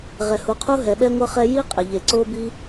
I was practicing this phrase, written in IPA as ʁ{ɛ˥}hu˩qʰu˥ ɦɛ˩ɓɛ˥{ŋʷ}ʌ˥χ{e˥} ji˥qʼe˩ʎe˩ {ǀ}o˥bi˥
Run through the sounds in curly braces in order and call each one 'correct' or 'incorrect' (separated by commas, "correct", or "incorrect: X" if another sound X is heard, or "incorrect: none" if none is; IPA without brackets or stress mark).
incorrect: ɛ˩, correct, incorrect: ɛ˥, correct